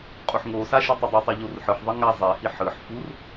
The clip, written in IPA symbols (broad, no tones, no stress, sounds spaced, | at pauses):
qʼ u ħ ŋ o s a ʃ ɯ tˤ o dˤ u tˤ e ʎ o r ħ ɯ ħ ðˤ ɯ ŋ a zˤ ɛ h i ħ ɯ ħ f u r